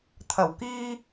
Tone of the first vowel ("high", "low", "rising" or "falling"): low